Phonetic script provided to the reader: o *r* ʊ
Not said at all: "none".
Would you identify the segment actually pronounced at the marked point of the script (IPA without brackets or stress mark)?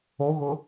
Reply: ɣ